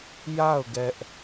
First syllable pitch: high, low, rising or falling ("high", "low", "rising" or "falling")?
falling